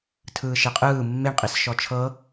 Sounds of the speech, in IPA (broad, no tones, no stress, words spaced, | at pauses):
tʰɯːʃɛqʼɯː mːeɳqʼis ʃɔt͡ʃʰɤ